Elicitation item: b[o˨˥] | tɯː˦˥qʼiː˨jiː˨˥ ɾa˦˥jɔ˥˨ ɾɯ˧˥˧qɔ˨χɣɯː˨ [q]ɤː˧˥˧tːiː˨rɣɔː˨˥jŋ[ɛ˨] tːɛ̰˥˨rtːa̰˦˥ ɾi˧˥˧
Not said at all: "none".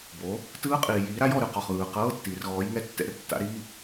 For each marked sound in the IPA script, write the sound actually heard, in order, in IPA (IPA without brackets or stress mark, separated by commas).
o˨˥, q, ɛ˧˥˧